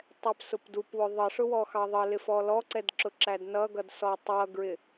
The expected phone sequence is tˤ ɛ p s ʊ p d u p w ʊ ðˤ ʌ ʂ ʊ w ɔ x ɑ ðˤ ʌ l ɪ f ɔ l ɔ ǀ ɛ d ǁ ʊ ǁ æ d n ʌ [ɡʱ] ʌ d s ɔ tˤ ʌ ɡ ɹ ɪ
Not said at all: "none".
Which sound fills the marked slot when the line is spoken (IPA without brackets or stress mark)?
ɡ